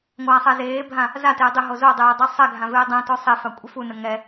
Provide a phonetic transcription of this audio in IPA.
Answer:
ŋʷ aː sˤ ɛ z eː bʱ ã | z a t ɪː dˤ ɪ ɦ o z o dˤ eː dˤ ɛ sˤ ɛ ɡʱ ã v ɪː dˤ ɛ̃ t o sˤ e f a kʷʼ ɪ f u n ə ŋ ɛ

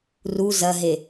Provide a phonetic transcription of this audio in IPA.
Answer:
r u z ɐ ɦ e

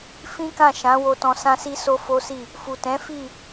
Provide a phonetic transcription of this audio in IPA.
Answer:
f ĩ˦ k ã˦˨ ʃ ã˨˦ w o˧ t ɔ̃˧ s ã˦ s i˦ s o˦ f o˦ s i˦˨ | f u˨ t ɛ̃˨˦ f i˦˨

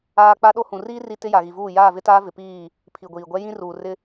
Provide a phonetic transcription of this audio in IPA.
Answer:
aː˦ k͡p a˦ ɗ o˦ h ũ˨ r iː˦ r i˦ t ɪ˦ j a˨ ɣ i˨ v uː˦˨ j aː˦˨ v ɪ˦ t aː˦ v ɪ˨ p iː˦˨ | pʰ i˨ ɡʷ iː˨ ɡʷ ɛ˦ j ĩ˦ r uː˨ r ɪ˦

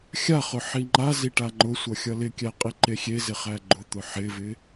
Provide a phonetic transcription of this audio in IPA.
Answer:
xʲ a χ ʊ ħ i ŋ͡ǃ a z i ʈ a ŋ͡ǃ ʊ sʷ ʌ xʲ ʌ l ɪ kʲ æ qʼ i ǃ e xʲ e z ɪ χ æ ɡ͡ǃ ʊ t̪ ʊ ħ ɪ v ɪ

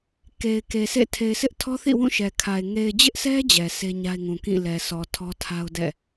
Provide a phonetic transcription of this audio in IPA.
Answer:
k e˨ ɪ̯ k e˨ s ḛ˦˨ tʰ e˨ ɪ̯ sʰ ɪ˦ ʔ tʰ ɔ˦ θ ḭ˦˨ w ũ˦˨ ʃ ɛ˨ kʰ a˨ ɪ̯ ŋ e˨ ɪ̯ d͡ʑ ɪ˦ ʔ s ɛ˦ d͡ʑ ɛ˨ s e˦ ɲ a˦ ɪ̯ ŋ ũ˨ k ĩ˦˨ l ɛ˨ sʰ ɔ˨ tʰ ɔ˦ tʰ a˦ ʊ̯ d ɛ̰˦˨

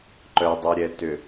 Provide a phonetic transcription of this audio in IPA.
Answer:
ǃ œ dˤ u ɾʲ ɛ t ʏ

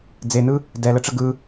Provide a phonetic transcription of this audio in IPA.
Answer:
d͡z e n ɯ | d ɛ l ə ʈ͡ʂ ə ɡ ɯ

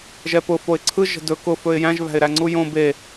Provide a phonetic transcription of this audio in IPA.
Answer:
ʒ ɛ p ʊ f o ɪ̯ ǀʰ ɯ ʒ ə̤ d ɵ k ʊ f ɵ ɪ̯ j æ̃ ʒ β æ̤ ɪ̯ ɾ æ ŋ͡ǀ u j õ b e

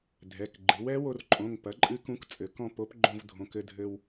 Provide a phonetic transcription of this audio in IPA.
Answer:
dʱ ɛ˩˧˩ k ɡ͡ǃ ɨ˩˥ w ɛ˧˥ w o˧ r ǃʼ õ˩˧˩ ŋ p ɐ˩˥ ǃʼ ɨ˧˥ k ũ˧˥ k t͡sʼ ɘ˩˥ k ɔ̃˧ p o˩˥ p ɡ͡ǃ õ˧ v dʱ õ˩˧˩ k ɘ˧ dʱ ɘ˧ w

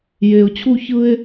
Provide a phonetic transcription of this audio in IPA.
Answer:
j e˧ ʊ̯ t͡ɕʰ u˥ ç ɯ˥ ɪ̯

